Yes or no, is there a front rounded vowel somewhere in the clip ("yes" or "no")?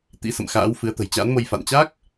no